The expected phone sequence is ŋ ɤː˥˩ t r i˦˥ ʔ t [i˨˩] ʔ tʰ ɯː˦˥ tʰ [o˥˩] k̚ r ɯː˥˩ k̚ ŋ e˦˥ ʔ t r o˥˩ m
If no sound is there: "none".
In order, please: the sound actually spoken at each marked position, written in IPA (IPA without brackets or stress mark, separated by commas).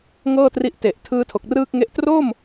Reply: e˨˩, o˨˩